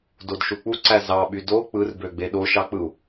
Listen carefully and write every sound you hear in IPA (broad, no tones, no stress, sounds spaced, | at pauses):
d o d ʃ u k͡p u ǀ æ z ɑ ɓ y d o k͡p ɯ r b ø ɡ͡b e ɗ o ʃ ɑ k͡p ɯ u̯